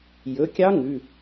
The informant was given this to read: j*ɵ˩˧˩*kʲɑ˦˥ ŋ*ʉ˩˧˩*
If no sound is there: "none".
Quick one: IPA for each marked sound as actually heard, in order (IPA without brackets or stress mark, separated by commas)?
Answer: ɵ˩˧˩, ʉ˩˧˩